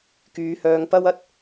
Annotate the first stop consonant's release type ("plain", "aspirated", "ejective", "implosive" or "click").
plain